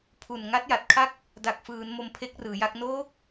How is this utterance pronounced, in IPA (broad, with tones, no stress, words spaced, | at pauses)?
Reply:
pʰu˨˩n ŋa˦˥t̚ja˨˩t̚kʰa˥˩k̚ | da˨˩k̚fɯː˩˦n mo˧mpʰe˦˥k̚rɯː˩˦ja˥˩k̚ noː˦˥k̚